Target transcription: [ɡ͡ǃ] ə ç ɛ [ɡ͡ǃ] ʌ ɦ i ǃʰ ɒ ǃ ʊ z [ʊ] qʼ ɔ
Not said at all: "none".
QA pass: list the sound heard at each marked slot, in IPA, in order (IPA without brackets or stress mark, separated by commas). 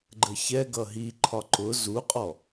ɡ͡ǃ, ɡ, u